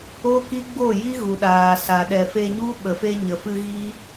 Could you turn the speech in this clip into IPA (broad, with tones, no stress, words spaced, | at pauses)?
o˦ki˦ɡ͡bo˦˨ ji˦ɣu˨ɗaː˨ sa˨ɗɛ˨fe˧ɲu˦ ɓə˨fe˧ɲə˨fɨ˧ ɣi˦